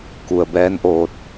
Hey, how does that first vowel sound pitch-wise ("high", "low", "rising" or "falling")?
low